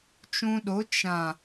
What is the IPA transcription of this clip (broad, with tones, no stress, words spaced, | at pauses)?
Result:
t͡ʃũ˧ɗo˨˦ t͡ʃã˨